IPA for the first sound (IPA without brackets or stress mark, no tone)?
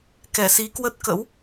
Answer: k